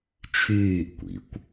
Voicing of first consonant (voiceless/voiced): voiceless